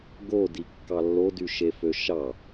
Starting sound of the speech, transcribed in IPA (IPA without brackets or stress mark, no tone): ɡ